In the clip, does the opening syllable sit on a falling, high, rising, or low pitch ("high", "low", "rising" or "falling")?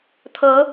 rising